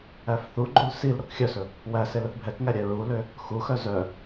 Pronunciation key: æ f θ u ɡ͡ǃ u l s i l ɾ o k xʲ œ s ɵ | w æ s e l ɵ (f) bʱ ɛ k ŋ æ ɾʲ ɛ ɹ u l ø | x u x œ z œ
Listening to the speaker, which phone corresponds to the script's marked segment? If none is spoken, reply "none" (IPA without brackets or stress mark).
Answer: θ